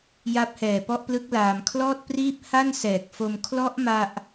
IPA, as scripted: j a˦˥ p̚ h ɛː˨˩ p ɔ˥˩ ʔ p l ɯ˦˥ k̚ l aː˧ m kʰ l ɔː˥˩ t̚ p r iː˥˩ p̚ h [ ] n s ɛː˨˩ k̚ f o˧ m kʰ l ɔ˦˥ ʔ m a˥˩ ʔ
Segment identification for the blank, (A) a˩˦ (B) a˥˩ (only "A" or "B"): B